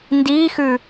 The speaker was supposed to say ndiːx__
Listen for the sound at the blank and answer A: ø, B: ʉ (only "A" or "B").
B